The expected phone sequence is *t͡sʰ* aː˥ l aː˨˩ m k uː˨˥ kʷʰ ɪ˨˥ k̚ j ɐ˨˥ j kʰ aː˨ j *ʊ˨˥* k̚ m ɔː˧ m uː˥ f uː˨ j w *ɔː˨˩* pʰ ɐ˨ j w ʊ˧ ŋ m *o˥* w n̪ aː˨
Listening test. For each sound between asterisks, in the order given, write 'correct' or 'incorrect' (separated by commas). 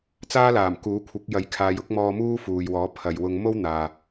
incorrect, correct, incorrect, correct